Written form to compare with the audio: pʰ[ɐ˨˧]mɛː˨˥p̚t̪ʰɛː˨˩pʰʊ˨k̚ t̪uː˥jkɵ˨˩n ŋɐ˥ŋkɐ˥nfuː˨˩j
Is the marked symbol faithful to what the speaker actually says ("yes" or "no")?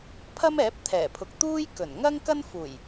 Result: no